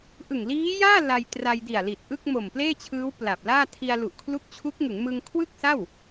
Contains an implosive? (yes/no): no